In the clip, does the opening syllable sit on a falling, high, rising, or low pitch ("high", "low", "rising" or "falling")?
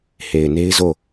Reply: low